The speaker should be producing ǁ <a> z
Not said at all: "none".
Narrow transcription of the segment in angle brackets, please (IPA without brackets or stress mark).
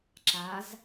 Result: a